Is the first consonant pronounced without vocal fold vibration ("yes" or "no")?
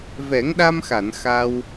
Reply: no